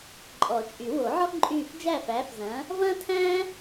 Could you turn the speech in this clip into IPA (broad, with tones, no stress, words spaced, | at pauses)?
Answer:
ǃʼɔ˨˩˦t͡ʃʼy˨˩˦wo˨˩˦ʕɔ˥ ǃʼyː˧˩f d͡ʒæ˥˨fæː˨˥fzɐ̃ː˨˥ | vɐ̃ː˥tʰæ̃ː˥